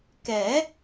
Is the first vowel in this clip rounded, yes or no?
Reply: no